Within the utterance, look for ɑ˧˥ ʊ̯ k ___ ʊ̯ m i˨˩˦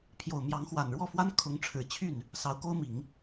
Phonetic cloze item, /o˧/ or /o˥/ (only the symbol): o˥